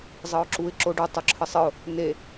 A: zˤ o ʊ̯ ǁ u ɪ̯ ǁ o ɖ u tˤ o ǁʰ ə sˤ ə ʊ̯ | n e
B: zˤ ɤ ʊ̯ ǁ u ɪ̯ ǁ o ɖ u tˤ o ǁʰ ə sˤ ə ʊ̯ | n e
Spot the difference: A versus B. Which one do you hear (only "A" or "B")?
B